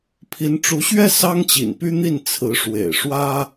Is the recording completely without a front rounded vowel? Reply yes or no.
no